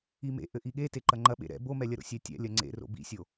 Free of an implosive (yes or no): no